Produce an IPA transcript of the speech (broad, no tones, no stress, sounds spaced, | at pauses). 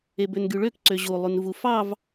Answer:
e b ø n ɡ y ɭ ø k ǀ ø ʑ u lˠ y n v u f ɑ v